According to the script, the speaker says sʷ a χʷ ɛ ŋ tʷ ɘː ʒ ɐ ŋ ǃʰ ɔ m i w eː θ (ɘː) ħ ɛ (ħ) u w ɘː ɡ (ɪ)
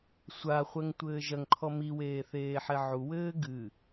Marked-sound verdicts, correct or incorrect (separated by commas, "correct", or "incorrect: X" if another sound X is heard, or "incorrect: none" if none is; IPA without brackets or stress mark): incorrect: eː, incorrect: ʕ, incorrect: ɨ